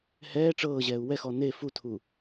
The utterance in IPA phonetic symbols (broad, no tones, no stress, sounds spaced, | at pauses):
h ɛː ʈ͡ʂ ɤː ʑ ɛː u̯ w ɛ x ɔ n e f u tʰ u